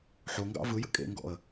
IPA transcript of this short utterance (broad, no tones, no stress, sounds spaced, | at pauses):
ħ o ŋ ɡ ɑ̰ v ɯ j ə̰ kʼ ḛ ŋ ɡ ɔ̰ ə̯